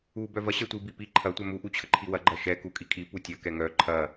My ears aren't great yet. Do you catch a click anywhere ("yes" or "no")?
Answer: yes